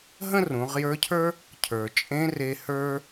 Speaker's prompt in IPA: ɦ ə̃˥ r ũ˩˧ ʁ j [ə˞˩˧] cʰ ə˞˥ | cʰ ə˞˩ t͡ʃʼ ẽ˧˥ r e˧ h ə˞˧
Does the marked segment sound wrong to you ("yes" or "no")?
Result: yes